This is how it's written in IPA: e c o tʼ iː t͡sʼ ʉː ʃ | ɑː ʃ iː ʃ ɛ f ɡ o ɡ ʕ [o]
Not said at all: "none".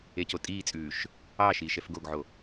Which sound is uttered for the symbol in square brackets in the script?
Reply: o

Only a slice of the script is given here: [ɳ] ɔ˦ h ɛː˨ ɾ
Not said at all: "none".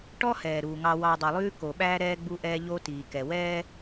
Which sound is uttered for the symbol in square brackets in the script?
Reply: ʈ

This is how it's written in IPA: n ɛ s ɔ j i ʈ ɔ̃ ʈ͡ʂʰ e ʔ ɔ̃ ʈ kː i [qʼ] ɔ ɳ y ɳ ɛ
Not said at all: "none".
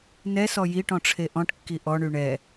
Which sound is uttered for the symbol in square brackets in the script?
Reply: ʔ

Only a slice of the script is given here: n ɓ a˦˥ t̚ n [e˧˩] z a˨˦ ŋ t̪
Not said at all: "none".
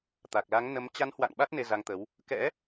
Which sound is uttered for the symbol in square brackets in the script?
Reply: e˧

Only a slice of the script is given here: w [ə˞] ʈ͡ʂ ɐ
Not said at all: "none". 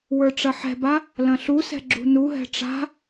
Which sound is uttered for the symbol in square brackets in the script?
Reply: ə˞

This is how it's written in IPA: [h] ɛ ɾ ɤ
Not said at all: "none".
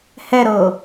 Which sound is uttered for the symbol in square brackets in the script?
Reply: h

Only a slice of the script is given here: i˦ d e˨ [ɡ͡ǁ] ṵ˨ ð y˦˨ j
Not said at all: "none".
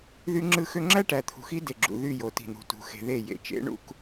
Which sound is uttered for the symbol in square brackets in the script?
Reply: ɡ͡ǁ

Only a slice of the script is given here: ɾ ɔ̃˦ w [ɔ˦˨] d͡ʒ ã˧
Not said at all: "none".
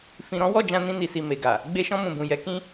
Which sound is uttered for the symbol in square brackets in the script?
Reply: ɔ˦˨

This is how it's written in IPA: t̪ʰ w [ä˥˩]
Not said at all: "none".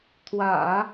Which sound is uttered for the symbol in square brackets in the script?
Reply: ä̰˨˩˦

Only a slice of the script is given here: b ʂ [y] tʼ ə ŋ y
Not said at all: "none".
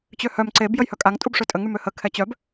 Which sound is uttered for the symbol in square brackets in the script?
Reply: ø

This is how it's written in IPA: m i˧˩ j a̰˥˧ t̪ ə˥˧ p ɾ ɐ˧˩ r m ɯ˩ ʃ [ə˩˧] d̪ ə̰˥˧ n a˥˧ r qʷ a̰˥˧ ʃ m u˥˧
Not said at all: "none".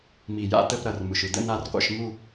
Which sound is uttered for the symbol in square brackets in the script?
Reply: ɯ˩˧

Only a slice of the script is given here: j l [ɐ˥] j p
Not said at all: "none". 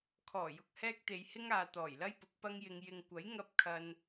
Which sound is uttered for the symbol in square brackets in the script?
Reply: ɐ˥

